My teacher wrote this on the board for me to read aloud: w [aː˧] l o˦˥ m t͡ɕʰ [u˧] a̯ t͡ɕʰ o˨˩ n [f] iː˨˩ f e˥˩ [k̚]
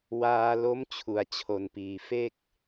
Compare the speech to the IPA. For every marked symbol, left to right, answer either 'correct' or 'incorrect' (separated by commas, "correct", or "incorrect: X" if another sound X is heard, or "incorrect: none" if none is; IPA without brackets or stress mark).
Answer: correct, incorrect: u˨˩, incorrect: p, correct